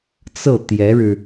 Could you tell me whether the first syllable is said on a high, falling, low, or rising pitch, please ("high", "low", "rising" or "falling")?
falling